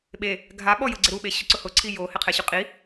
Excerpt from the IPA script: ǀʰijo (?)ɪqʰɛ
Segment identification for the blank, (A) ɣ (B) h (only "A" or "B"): B